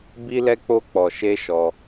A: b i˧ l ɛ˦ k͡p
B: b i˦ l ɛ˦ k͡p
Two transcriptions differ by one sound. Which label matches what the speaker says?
B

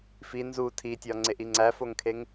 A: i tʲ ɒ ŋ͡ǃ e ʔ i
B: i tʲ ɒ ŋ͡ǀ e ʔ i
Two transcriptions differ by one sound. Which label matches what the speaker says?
B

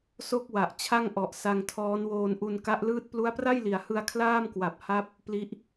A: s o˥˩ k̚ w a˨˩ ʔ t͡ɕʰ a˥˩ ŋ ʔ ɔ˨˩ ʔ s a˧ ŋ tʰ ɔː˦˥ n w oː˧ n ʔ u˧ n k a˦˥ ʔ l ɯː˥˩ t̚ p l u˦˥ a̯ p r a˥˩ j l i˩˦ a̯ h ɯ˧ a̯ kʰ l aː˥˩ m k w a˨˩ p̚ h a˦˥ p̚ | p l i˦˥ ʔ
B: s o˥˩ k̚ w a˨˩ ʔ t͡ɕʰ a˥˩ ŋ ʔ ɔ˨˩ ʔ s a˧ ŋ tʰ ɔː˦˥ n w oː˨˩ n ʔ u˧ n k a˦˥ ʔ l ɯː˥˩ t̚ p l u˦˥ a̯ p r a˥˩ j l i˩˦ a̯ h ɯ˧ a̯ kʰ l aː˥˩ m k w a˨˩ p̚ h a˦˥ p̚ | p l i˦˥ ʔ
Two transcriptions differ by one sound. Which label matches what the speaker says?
A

